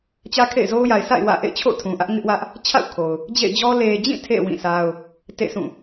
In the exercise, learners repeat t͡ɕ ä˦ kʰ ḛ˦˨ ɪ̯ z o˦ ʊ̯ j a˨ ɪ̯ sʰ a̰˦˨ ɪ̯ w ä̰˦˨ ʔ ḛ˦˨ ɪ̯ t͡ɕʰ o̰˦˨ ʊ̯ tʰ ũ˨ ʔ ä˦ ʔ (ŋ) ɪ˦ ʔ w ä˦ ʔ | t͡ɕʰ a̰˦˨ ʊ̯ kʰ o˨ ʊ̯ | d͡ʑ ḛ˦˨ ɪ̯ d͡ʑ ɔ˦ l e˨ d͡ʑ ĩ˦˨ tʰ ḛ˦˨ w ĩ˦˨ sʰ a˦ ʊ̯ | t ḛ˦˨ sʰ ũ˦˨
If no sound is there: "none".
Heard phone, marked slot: ŋ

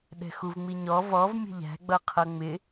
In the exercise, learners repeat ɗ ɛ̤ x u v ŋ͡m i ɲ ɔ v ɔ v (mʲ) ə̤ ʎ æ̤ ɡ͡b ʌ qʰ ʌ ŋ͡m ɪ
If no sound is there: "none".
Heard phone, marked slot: mʲ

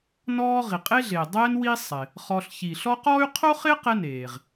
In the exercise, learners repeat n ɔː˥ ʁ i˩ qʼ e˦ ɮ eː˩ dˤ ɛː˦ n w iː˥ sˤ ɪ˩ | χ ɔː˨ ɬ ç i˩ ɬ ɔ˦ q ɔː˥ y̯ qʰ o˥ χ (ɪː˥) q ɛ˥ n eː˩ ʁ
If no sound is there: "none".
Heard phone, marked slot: ɪː˥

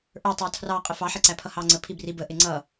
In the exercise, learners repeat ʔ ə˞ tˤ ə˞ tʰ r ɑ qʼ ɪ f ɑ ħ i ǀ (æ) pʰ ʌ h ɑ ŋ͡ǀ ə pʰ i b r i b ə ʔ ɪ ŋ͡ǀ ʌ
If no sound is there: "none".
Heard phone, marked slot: æ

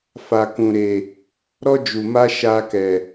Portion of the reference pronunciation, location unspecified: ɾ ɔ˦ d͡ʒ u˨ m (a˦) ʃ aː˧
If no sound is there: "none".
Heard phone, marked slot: a˦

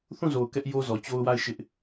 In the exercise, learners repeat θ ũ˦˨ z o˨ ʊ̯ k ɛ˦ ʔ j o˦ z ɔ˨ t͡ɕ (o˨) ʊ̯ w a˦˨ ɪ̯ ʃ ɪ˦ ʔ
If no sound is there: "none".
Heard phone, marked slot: o˦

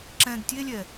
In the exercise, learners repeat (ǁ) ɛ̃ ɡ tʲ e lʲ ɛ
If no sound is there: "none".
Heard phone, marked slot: ǁ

